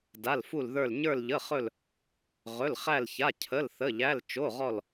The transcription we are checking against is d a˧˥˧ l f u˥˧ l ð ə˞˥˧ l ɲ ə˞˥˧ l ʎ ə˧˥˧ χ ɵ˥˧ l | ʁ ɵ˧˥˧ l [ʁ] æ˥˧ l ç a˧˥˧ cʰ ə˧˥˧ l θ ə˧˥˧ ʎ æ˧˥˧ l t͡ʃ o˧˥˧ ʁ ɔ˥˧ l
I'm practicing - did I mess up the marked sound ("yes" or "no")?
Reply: yes